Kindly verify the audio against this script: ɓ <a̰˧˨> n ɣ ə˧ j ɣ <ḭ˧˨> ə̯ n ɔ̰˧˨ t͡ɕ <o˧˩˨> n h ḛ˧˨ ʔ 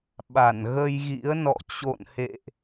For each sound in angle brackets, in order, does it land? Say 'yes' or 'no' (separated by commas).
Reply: no, no, no